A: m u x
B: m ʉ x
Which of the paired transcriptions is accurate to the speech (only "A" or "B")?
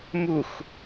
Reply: A